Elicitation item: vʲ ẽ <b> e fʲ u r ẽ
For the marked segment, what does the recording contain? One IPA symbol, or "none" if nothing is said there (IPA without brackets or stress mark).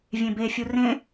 b